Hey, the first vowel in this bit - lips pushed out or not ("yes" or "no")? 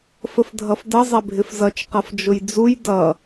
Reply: no